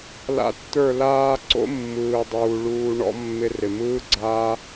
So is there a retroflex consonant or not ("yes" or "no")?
yes